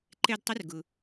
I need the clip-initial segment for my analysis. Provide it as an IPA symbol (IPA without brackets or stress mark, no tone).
ǃ